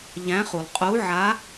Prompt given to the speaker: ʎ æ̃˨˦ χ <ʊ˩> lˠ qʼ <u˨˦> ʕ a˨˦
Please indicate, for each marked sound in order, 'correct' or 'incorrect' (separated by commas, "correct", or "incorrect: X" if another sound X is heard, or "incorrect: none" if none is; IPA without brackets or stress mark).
incorrect: u˩, correct